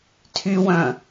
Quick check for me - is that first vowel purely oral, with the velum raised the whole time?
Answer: yes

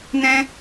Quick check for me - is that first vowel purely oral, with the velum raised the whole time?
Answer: no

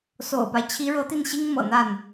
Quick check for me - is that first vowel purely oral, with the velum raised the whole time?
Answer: yes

